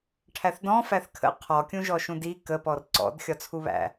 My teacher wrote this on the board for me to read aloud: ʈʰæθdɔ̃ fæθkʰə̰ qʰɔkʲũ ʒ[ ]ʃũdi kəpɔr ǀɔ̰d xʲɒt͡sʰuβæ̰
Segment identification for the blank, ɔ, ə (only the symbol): ɔ